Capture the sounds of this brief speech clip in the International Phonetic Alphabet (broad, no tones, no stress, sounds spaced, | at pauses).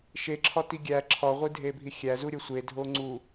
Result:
ʃ e ǁʰ ɒ t i ɡʲ æ ǁʰ ɒ ʁʷ i dʱ e bʱ i xʲ æ z u ɾʲ o sʷ e dʱ o ŋ͡ǀ u